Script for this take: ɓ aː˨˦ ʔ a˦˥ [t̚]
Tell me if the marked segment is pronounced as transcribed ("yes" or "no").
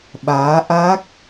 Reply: no